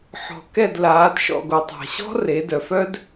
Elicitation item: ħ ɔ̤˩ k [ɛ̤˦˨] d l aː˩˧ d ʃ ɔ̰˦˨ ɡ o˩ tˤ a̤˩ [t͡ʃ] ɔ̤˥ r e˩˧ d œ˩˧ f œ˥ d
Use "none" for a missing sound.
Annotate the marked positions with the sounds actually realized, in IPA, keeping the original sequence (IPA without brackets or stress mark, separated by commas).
ɛ˦˨, ɕ